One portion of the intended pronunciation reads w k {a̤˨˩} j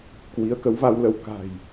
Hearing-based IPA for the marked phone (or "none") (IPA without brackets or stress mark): a̤˨˩